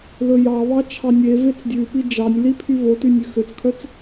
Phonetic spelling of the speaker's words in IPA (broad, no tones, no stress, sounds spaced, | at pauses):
l ɵ j ɑ β ɑ t͡ʃʰ ɑ nʲ e v e t͡s dʲ ʉ p i d͡ʒ ɑ nʲ l i pʰ y v o t y nʲ ʉ x ø t͡s kʰ œ t͡s